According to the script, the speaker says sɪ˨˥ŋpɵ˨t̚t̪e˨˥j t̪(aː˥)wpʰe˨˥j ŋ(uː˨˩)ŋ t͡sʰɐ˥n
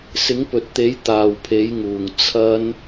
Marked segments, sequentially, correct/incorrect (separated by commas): incorrect, correct